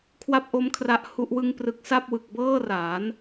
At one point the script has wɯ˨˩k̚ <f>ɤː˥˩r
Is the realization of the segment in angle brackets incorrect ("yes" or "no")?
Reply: yes